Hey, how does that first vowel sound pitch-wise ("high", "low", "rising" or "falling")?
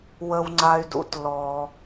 high